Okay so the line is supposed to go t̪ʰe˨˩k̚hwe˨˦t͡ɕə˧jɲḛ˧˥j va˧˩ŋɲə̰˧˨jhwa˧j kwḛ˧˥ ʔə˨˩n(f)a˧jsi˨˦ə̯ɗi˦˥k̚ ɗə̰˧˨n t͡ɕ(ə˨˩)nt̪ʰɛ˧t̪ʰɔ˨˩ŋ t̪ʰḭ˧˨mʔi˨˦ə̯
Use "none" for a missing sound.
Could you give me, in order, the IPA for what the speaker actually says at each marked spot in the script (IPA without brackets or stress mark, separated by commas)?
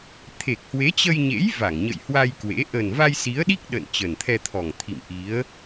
v, ə˨˩